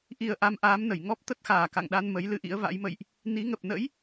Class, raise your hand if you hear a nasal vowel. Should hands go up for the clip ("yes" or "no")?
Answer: no